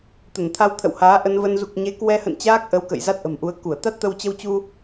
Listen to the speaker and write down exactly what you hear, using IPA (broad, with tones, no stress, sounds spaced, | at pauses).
t̪ ə˧˩ n t̪ʰ a˧ w t̪ʰ ə̰˧˨ w h aː˨˦ ʔ ə˧ n v ə˧ n z u˨˩ k̚ ɲ e˨˦ k w ɛ˧ h ə̰˧˨ n t͡ɕ aː˦˥ k̚ ʔ ə˨˦ w k ə̰˧˨ j z a˦˥ t̚ ʔ ə̤˨˩ m ʔ u˨˦ ə̯ k u˧˩ ə̯ t̪ a˦˥ t̚ t̪ ə˧ w t͡ɕ ə˧ w t͡ɕ u˧